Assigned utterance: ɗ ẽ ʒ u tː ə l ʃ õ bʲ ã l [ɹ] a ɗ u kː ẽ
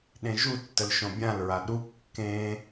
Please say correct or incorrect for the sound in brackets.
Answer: correct